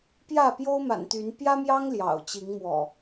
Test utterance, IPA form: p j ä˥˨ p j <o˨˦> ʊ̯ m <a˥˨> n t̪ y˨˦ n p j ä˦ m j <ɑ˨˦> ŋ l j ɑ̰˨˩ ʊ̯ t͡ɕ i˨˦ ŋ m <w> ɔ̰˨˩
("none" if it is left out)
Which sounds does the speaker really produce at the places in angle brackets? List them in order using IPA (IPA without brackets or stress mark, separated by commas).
o˦, a̰˨˩, ɑ˦, w